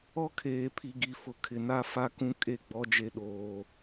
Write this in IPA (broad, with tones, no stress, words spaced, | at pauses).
ɔ˦kʰeː˨pʰi˨ ɡi˨fʊ˨ kʰɪ˨na˦ fa˦kũ˦ kʼe˦˨ɡ͡bɔ˦d͡ʒe˦ ɗoː˦